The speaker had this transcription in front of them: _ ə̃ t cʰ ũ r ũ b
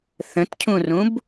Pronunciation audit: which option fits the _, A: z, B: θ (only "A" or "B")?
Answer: B